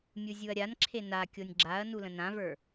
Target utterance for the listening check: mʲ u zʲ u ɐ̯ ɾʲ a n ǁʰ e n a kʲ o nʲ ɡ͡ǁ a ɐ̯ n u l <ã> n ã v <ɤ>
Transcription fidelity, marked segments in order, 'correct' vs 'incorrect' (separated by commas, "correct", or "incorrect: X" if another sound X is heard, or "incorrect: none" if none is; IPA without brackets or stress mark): incorrect: ə̃, incorrect: ə˞